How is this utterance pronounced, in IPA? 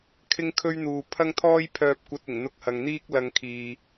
kʰ ɪ˥ ŋ kʰ ɵ˥ ɥ n̪ uː˨ pʰ ɐ˥ ŋ t̪ʰ ɔː˥ j pʰ œː˧ p̚ kʷ ɐ˧ t̚ ɪ˨˩ ŋ n̪ ʊ˧ k̚ h ɐ˨ ŋ n̪ iː˥ k̚ l ɐ˧ ŋ kʰ iː˨

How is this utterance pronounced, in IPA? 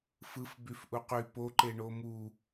f ɯ f b y f ʔ u q y p o ǃ e ɳ o m u

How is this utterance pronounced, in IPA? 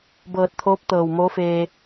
b ɤː˧˩ t̚ t̪ʰ oː˧˥ p̚ t̪ ɤː˧˩ w m oː˧˥ f eː˧

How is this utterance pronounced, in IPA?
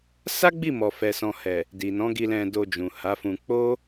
s a˦ ɡ͡b i˦˨ m ɔ˨ f ɛ˨ s ɔ̃˨ h ɛ˨ | d i˨ n ɔ̃˨˦ ɡ i˧ l ɛ̃˧ d o˧ d͡ʒ ũ˨ h a˨˦ f ũ˧ k͡p o˦

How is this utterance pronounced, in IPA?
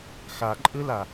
x a ǃʼ ɯ l a

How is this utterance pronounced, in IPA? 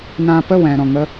n ã˦ p ə˦˨ w ɛ̃˨ ɾ ɔ̃˨ ŋ ə˦

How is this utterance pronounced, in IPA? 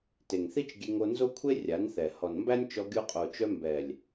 t e˨ ŋ θ i˦ t͡ʃ ɡʲ e˧ ŋ o˧ n z o˦ kʷʰ e˦ rʲ a˨˦ n θ ɛ˨ h ɔ˨ n m b æ˦ nʲ t͡ʃ ɔ˧ ɡʲ o˧ qʼ o˨ t͡ʃ œ˧ m b ɛ˨ lʲ

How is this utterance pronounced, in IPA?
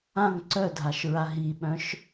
ã ŋ ǀ œ dʱ a ʃ ɹ a ɦ i ɓ œ̃ ʃ

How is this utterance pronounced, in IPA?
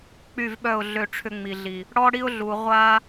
k͡p y˦˨ v ɓ œ˦˨ ʊ̯ ɮ ø˦˨ ʈ͡ʂʰ ʏ˦ ŋ͡m i˨ ɮ i˨ | ɽ ɔ˦ ɽ i˦ ʊ̯ ɮ u˨ ʁʷ a˦

